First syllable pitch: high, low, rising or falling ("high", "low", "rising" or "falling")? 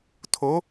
rising